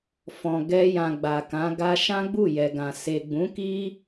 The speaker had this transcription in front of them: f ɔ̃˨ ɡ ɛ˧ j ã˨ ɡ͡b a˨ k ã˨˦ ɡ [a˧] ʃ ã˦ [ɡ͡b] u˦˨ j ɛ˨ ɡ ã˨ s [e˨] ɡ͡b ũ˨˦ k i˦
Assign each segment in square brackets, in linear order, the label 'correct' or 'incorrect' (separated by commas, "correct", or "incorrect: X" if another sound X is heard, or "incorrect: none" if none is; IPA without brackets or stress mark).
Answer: correct, correct, correct